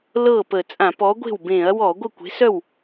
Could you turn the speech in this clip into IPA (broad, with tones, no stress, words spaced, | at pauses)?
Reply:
lɤ˥˩pə˧˩˧ t͡sʼã˧˩˧pɔ˨˥ɡʷe̤˥˩w bẽ˧˩˧ɐ̯wɔ˧˩˧ ɡʷə˥˩kʷe̤˨˥sœ˥˩w